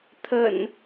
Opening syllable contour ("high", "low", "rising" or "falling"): low